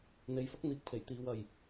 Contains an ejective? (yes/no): no